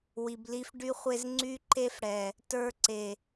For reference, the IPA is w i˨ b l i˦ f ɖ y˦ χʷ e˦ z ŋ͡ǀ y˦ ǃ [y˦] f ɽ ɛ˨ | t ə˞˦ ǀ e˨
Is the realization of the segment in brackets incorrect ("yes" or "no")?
yes